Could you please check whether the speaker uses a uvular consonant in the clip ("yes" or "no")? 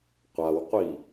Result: yes